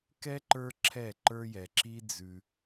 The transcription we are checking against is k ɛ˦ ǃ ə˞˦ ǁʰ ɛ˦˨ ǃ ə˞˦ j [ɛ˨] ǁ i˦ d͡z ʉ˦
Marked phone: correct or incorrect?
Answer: correct